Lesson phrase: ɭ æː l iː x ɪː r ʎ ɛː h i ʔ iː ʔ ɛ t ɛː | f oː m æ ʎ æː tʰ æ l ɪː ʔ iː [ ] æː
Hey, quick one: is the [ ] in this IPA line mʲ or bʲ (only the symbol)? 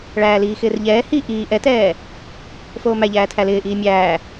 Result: mʲ